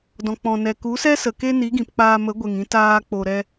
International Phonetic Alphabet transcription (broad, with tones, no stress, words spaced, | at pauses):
dɔ̃˨k͡pɔ̃˨nɛ˨ ku˨˦sɛ˦sə˨ ke˦ni˨˦ɡĩ˨pk͡paː˧ mə˨˦ɡʷe˨ŋĩ˧ taː˧k͡po˨ɾɛ˧